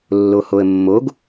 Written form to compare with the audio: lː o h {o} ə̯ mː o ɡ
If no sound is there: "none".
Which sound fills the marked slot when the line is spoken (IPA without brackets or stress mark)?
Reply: o